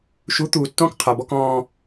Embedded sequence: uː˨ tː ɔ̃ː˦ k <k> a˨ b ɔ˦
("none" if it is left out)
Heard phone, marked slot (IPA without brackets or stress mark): qʰ